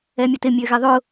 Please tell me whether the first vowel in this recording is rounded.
no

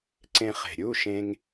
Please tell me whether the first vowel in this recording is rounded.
no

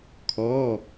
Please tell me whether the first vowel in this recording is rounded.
yes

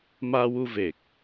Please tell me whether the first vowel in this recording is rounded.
no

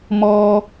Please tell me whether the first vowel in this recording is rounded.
yes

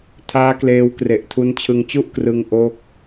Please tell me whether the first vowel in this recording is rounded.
no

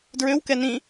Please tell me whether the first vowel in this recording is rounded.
yes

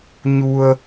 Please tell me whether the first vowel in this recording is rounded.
yes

